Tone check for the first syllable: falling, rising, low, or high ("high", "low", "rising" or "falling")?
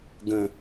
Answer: low